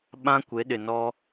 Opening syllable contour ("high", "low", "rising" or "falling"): high